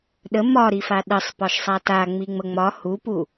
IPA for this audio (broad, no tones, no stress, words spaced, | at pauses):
ɗə mɒ ɾifaɗəsˤpɒʃ sˤata ŋ͡miŋ͡məŋ͡mɒ hupu